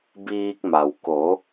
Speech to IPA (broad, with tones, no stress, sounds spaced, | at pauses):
b iː˧ k̚ m a˩ w k o˩˧